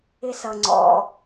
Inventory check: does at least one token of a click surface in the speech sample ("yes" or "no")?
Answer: yes